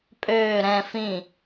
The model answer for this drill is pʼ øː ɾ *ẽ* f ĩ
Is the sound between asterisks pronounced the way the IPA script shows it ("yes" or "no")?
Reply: no